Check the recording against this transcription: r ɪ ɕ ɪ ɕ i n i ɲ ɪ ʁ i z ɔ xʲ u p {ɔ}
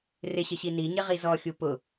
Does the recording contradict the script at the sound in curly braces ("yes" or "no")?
yes